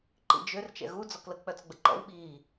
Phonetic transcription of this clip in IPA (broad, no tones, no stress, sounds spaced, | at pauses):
ǃ ḭ d͡ʒ ø r t͡ʃ ɛ̰ ɣ u d͡z ɔ k l ə k͡p œ t͡s ɡ͡b ə ǃ ɔ̰ w ɓ i